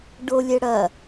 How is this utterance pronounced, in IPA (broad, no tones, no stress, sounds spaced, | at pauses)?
ɖ o lʲ ɛ ɽ ɐ